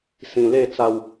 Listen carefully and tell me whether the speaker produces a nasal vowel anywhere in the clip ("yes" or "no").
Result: yes